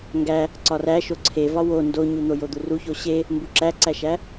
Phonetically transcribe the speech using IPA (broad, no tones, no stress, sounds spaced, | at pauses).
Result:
ŋ ɡ æ | ǀ ɒ r æ ʃ o ǀʰ e v ɒ w o n d o ɲ u n̪ o j o d̪ u r u ç o ɕ e | m b u ǁ æ ǀ æ ʃ æ